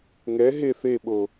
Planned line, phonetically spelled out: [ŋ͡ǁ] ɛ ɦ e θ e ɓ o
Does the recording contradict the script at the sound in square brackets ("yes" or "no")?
yes